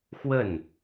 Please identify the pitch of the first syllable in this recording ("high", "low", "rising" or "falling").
falling